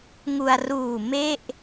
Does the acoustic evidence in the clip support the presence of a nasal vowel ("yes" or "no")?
no